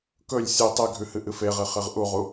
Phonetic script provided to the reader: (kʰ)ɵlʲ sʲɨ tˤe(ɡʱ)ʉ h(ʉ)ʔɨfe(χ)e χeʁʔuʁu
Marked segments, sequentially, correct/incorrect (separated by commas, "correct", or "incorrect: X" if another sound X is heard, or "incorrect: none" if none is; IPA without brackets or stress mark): incorrect: k, correct, incorrect: ɨ, incorrect: ʁ